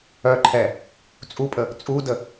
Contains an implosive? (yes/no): no